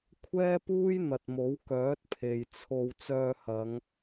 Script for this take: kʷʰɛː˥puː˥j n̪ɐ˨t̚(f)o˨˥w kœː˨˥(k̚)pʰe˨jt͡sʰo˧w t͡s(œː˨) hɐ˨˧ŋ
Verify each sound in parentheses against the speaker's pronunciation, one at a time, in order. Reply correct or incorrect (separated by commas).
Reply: incorrect, incorrect, incorrect